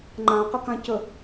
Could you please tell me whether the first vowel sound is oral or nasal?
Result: nasal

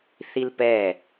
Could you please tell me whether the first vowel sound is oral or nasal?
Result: oral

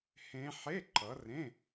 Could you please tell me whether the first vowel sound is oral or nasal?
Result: nasal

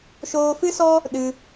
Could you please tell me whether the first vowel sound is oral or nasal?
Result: oral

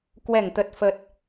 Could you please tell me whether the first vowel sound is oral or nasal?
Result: oral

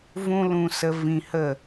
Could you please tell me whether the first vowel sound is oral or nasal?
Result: nasal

